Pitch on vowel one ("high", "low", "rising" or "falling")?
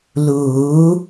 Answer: rising